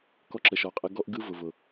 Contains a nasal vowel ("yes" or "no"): no